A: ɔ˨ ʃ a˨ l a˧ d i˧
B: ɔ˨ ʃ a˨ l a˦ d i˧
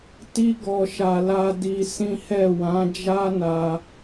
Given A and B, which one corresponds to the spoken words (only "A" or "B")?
A